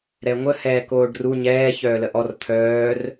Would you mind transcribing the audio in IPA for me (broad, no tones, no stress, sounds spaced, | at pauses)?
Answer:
ɾ ɛ ŋʷ ə h ɛː k oː ɖ r u ɲ ɛː ç œː l ə ʔ ɔ r t̪ʰ œː r